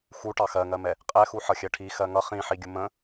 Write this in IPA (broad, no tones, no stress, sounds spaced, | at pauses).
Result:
x u ʈ ɑ x ɜ ŋ ɜ m ɛ | qʼ ɛ x u ħ ʌ xʲ ɜ ʈʰ i x ɜ ŋ ʌ χ ĩ ħ i ɡʲ ʊ m ə̃